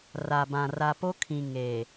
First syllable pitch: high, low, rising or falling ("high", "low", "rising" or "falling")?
low